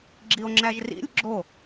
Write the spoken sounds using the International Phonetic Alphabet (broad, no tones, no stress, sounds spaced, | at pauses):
ɡ͡ǁ i o̯ ŋ͡ǁ æ ʒ r ḭ lʲ ɡ͡ǁ o